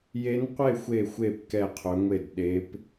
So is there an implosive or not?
yes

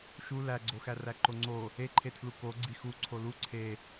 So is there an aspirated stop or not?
yes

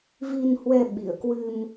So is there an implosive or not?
yes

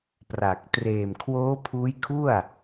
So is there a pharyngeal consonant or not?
no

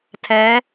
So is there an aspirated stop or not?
yes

